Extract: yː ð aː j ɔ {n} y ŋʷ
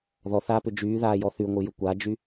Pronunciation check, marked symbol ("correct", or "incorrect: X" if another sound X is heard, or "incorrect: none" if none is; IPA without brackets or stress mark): incorrect: θ